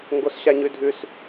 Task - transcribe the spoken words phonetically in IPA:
ŋɡosɕaɲʉdʱʉs

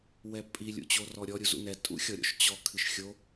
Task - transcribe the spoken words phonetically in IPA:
wɛpʼi lʲṵt͡ɕorɔɾʲɔ ɾʲuzṵnɛ tʼṵxʲɔɾʲɔ̰ʃt͡ɕɔ kʰɨʃxʲo

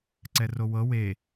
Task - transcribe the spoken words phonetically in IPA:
ǀɛrowɤ we

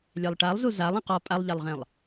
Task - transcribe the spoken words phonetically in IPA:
lʲɛlˠʈalˠzu zalˠ ẽqɔ pʼalˠʎalˠʁẽlˠ

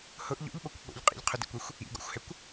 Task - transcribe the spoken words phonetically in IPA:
hʊʔ ʎo̰ʎɓokʷ ɓo̰ʎ qʼḭʎqʰʊdḭkʷɛxʷ | ḭɡɔ̰xʷhɛkʷ

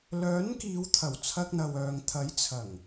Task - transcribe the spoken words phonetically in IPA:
lœː˨˥nkiː˨˧wt̪ʰɐ˨˩w t͡sʰɐ˧k̚n̪ɐ˨wœː˨ŋt̪ʰɐ˨˥j t͡sʰɐ˨˩ŋ

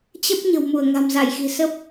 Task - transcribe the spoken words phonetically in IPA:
t͡ɕə˦˥p̚ ɲə̤˨˩wmu˧˩ə̯ ŋa̤˨˩mza˧˩jxi̤˨˩ sə˦˥p̚

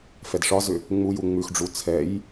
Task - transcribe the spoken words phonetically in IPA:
fɛdʂɒzʏ | ŋ͡muju ŋ͡mʉxɖ͡ʐu t͡sʰɛj

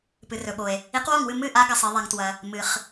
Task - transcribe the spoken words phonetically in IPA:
pɨ˩rɵ˩ɓo˩e̯ | i˨˥qwo˥˩ŋwɨ˥˩ mɨ˥˩ʔa˨˥ ɡɐ˩sˤi˩ðˤa˩ŋ twɐ˩ | mɨ˩χ

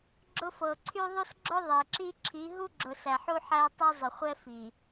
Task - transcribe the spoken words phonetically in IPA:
ɡ͡ǁʊ˦ fɤ˨ǀʰy˦ðˤu˦sɡ͡ǁʊ˦ ðˤe˨ǁi˦ǁʰi˨˦ ɦu˦ɡ͡ǁʊ˨ sæ˨ħu˦ħæ˦tˤu˦ zˤʊ˨χʷɛ˦fi˨

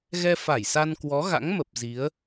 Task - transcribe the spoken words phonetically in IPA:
ɣɛ˧fa˧˩jsa˧nkwɔ˨˦ ɣa̰˧˥ŋmə˨˩p̚ zi˨˦ə̯

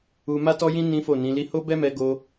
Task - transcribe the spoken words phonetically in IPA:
u˧ ma˦tɔ˦jĩ˦ nĩ˦fo˦˨nĩ˨˦li˦ ho˦bɛ˦mɛ˧ ɡo˧

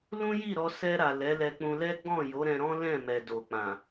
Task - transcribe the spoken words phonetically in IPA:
lũ˦ji˦˨ɾɔ˧ sɛ˧ɾa˨ lɛ˨˦ lɛ˧k͡pũ˧lɛ˦ ɡ͡bɔ̃˦˨ jo˨˦ɾɛ̃˧ɾɔ̃˦ lɛ̃˦˨ mɛ˨ do˨k͡pã˨

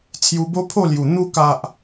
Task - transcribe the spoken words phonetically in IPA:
t͡sʰju˧bo˦pʰo˥˧lju˨˩ n̪u˧ka˨ʔ

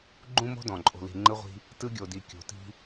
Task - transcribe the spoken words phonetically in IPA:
ɡ͡ǃũ˥mo̤˥ dɔ̃˧˩ǃʼo̤˧li̤˧ ŋ͡ǃɯ˥ʁʷi̤˥ | tɯ˥ɡʲo˧di˧˩ kʲo̤˧˩ti̤˥

